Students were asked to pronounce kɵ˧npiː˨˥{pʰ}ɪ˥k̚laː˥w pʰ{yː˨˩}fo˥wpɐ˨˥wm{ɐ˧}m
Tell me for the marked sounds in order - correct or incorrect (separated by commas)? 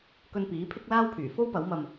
correct, correct, correct